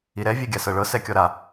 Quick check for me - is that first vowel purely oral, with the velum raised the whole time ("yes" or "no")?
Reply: yes